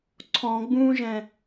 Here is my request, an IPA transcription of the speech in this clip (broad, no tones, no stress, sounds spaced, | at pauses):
ǀʰ ɔ̃ ɡ͡b ũː ʒ ɛ̃